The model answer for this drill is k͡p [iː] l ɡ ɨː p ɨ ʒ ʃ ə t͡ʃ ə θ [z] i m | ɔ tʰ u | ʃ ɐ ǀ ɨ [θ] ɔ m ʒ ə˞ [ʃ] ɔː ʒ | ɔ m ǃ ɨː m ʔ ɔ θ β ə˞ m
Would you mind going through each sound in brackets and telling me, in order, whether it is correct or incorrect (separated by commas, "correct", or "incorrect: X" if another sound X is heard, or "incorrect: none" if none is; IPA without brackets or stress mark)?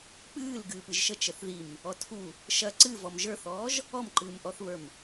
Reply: incorrect: ɨː, incorrect: ð, incorrect: v, incorrect: θ